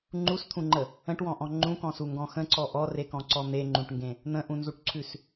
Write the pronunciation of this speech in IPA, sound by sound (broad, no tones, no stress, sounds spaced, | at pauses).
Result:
ŋ͡ǃ u s t̪ʰ ũ ŋ͡ǃ ə | ə̃ ʈ w ɔ̃ ʔ ɔ̃ ŋ͡ǃ ũ k ɔ̃ s u ŋ ɡ ɔ̃ x ə̃ ǀ ɔ ʔ ɔ r e k ɔ̃ ǀ ɔ n̪ e ŋ͡ǃ ũ ʈ ŋ ɡ ẽ | n̪ ə̃ ʔ ũ n z u ʈ ǀʰ ʉ s